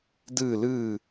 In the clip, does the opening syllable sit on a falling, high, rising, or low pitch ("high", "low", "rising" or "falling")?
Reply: falling